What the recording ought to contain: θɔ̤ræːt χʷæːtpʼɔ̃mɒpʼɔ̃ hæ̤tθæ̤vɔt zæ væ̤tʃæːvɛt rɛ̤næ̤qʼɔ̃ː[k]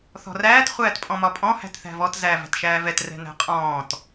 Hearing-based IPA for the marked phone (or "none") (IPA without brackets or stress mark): t